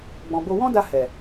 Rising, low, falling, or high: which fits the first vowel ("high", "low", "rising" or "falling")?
low